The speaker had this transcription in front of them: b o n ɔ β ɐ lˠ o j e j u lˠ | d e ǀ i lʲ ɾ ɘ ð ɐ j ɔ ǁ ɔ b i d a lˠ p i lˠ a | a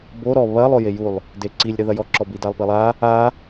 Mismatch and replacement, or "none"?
n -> ɾ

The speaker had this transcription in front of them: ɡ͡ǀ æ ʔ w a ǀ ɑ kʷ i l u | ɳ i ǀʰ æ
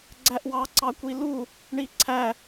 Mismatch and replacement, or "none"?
a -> ɑ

